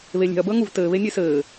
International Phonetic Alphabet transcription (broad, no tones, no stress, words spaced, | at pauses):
βelʲe̤ɐ̯ bəːŋuv tɘː βenʲesɘː